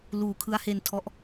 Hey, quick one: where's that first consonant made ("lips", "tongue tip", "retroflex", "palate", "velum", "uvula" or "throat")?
tongue tip